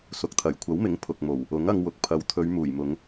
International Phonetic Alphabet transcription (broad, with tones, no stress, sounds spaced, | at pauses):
s ʊ˨ k̚ t̪ʰ ɐ˨˩ j kʷʰ ɐ˨˥ w m ɪ˨˥ ŋ pʰ ʊ˨ k̚ m o˨˩ w | ʊ˨˥ ŋ ɐ˧ ŋ w ʊ˨ k̚ pʰ ɐ˨˥ w t̪ʰ ɵ˨˧ ɥ m uː˨˩ j m ʊ˨˧ ŋ